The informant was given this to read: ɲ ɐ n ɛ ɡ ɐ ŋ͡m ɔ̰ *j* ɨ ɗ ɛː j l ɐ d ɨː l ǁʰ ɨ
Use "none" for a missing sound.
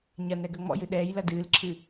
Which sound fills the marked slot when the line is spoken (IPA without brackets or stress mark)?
j